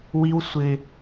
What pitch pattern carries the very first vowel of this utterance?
high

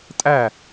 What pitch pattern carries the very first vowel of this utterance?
falling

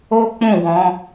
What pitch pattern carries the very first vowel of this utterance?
high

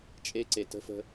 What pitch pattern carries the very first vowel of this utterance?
high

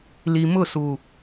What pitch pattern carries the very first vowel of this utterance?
low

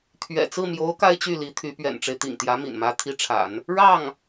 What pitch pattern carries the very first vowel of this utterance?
low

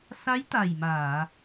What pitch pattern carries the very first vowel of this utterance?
rising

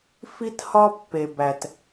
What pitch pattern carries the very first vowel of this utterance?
high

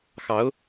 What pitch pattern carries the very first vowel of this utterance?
rising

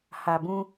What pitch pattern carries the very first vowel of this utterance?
low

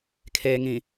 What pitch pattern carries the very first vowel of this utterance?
low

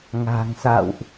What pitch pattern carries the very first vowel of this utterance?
low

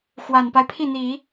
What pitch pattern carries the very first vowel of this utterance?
low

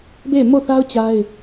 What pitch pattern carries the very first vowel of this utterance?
falling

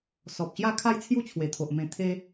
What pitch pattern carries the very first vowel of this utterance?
low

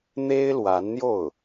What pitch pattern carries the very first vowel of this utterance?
high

